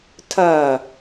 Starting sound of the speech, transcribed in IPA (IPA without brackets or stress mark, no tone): tʰ